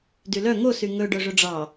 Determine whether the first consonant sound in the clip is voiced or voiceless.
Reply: voiced